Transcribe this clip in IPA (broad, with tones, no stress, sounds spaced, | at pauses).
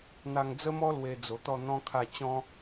n̪ a˧ ŋ d͡z ə˦ m ɔ˦ l w e˧ d͡z o˨˩ t̪ ɔ˥˧ n̪ ɔ̃˦ kʰ a˥˧ t͡ɕ ɔ̃˦